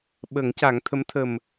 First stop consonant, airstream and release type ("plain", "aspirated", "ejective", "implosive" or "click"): implosive